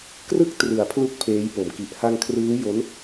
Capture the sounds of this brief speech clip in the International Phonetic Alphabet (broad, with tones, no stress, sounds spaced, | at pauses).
k r ɯ˦˥ k̚ t r ɯ˩˦ a̯ pʰ l u˦˥ k̚ pʰ eː˦˥ j p o˨˩ m k i˨˩ ʔ h a˧ ŋ kʰ r ɯː˦˥ j o˦˥ n